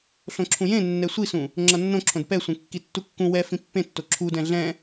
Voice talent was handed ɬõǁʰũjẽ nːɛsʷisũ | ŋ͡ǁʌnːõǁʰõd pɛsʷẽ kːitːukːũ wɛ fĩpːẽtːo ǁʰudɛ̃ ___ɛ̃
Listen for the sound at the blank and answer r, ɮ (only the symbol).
ɮ